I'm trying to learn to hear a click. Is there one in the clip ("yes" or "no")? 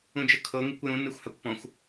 no